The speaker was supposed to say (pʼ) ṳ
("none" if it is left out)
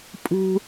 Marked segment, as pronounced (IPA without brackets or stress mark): pʼ